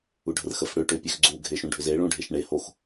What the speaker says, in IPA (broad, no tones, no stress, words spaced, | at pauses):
uɖʱərxəf ɽøʈ øpʲøxɡ͡ǀu ɡʱeʃũɖʱʏze ɭũɖʱeʃɳe hox